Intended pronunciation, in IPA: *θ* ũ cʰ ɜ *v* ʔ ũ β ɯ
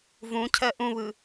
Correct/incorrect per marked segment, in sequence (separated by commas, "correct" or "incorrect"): incorrect, incorrect